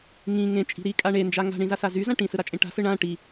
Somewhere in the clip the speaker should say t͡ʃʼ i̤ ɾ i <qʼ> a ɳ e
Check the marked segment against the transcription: incorrect: kʼ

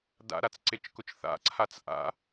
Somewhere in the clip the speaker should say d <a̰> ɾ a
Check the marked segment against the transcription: correct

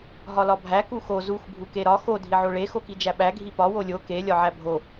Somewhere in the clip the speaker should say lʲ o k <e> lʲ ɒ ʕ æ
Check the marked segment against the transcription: correct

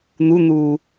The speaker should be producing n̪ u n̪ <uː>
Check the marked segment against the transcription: correct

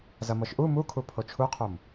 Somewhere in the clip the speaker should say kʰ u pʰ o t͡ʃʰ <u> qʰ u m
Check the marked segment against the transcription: correct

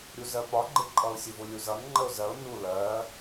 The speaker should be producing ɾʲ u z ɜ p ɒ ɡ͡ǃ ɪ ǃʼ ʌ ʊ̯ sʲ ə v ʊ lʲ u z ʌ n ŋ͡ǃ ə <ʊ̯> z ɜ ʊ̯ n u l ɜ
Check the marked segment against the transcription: correct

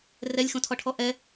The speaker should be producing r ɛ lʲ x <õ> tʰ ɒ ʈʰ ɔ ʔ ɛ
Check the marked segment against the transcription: correct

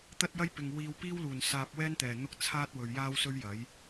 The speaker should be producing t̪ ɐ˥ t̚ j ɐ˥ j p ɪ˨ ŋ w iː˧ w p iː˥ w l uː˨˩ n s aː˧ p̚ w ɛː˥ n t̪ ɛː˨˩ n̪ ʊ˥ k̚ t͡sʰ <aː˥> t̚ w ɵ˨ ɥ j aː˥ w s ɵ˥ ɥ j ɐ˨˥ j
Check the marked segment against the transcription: correct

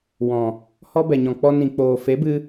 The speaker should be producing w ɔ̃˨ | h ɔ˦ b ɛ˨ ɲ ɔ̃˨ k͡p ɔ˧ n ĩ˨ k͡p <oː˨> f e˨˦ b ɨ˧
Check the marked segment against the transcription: correct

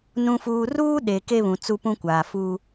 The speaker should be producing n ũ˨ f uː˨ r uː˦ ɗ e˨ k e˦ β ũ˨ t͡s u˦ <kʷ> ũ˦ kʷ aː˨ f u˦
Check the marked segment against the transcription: incorrect: p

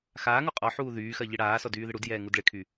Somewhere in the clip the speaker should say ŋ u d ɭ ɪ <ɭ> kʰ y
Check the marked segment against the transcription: incorrect: none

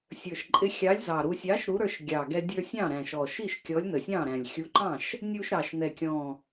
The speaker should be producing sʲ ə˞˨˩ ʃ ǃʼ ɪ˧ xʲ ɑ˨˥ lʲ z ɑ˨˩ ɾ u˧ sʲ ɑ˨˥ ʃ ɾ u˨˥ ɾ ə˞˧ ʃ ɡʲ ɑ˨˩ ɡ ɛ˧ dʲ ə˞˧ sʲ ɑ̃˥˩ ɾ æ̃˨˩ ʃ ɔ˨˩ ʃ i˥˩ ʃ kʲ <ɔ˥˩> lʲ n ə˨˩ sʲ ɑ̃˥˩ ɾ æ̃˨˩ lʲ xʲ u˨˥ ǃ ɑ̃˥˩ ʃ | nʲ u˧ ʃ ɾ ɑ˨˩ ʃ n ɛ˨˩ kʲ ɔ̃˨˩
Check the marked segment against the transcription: incorrect: ɔ˨˥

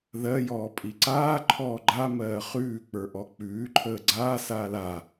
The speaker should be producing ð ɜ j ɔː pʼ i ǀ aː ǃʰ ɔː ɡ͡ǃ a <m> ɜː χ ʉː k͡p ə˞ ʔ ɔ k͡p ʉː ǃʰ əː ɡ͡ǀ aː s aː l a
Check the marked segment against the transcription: correct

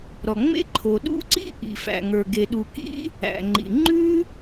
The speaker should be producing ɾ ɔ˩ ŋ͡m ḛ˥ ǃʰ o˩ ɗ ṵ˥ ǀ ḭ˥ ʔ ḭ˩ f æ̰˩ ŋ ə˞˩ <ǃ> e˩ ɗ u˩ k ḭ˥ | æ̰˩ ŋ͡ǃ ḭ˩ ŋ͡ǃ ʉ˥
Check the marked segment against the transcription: incorrect: ɡ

